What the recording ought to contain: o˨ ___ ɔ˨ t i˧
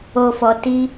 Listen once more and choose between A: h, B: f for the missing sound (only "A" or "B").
B